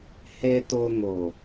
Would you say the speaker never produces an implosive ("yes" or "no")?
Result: yes